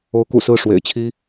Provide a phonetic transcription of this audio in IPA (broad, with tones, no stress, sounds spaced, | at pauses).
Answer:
o˧˥ ʊ̯ k ṵ˨˩ s ɹ̩˥˩ ʂ w ḛ˨˩ ɪ̯ t͡ɕʰ i˥